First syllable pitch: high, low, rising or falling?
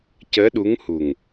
rising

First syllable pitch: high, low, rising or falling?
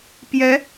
rising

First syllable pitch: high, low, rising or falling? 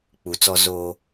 low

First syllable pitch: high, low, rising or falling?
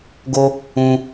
high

